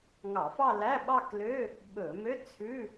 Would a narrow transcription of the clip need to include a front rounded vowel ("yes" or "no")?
yes